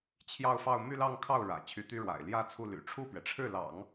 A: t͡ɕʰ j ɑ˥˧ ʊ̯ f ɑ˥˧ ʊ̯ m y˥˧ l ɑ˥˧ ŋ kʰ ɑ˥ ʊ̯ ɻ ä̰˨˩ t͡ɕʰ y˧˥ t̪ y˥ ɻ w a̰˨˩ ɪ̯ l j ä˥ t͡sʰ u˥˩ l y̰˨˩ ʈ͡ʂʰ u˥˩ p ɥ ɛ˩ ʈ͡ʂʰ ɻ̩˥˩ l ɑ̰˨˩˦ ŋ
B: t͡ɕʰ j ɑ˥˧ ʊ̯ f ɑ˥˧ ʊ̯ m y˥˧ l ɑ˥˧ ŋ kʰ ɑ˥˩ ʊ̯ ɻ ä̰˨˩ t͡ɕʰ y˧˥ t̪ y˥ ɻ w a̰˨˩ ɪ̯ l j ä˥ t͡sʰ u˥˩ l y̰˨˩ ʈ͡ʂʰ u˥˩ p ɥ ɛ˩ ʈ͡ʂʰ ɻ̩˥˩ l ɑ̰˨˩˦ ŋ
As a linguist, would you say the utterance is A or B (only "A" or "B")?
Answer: B